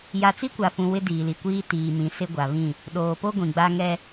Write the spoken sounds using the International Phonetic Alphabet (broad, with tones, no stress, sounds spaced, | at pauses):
j a˨ t͡s i˦ kʷ a˨ f ũ˨ w ɪ˦ d iː˨ l i˨ kʷ iː˦ t iː˨ m ĩ˨ s ɪ˦ ɡʷ a˨ β ĩ˦˨ | ɗ oː˨ p o˦ ɡʷ ĩ˨ ɡ͡b a˦ ŋ ɛ˦